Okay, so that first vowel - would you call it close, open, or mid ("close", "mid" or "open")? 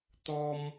mid